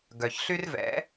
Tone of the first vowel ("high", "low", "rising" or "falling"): low